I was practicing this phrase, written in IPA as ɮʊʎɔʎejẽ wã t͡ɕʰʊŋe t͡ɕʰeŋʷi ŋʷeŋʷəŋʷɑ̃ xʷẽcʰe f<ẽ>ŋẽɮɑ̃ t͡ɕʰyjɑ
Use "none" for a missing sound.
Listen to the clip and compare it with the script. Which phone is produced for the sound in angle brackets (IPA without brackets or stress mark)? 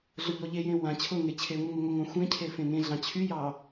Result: ẽ